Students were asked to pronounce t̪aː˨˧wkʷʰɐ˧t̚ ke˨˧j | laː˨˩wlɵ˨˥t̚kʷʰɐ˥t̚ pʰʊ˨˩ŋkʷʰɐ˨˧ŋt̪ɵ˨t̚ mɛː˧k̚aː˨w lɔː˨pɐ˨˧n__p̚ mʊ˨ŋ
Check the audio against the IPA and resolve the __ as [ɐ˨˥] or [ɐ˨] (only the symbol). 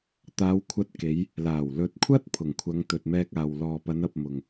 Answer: ɐ˨